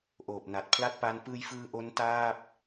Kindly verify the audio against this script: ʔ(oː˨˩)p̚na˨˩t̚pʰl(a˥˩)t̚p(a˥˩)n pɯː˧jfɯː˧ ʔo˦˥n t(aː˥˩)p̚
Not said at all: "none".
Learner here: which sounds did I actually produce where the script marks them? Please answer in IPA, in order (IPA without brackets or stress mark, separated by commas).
oː˨˩, a˥˩, a˦˥, aː˥˩